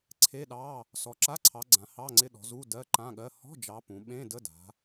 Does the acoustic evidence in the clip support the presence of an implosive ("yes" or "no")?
yes